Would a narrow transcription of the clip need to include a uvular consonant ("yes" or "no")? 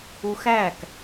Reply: no